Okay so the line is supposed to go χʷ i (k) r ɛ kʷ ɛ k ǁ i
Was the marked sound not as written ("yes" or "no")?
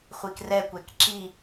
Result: no